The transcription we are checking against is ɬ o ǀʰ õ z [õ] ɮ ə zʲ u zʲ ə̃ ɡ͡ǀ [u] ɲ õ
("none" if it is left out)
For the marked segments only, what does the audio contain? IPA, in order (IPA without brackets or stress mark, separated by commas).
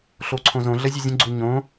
õ, u